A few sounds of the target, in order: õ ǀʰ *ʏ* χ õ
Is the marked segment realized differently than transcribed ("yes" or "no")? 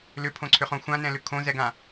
no